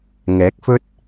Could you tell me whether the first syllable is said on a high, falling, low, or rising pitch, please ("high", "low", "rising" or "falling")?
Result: rising